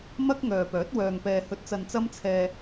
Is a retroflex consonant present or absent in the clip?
absent